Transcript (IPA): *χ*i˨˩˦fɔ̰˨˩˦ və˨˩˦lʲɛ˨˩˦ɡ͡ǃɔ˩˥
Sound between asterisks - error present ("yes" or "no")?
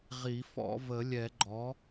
yes